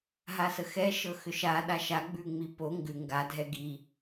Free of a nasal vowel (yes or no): yes